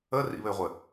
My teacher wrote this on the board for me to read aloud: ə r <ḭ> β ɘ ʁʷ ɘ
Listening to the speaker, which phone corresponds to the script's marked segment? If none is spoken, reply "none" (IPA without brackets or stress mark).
ḭ